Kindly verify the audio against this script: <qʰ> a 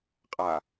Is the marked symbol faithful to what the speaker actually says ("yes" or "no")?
no